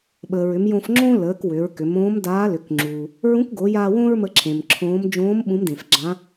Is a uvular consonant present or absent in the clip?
absent